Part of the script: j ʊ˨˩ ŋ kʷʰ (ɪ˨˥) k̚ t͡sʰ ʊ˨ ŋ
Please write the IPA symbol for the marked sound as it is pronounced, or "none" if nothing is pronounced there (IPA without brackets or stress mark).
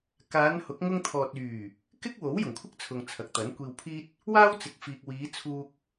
ɪ˥